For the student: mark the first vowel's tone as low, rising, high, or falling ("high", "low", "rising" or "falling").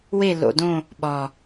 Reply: falling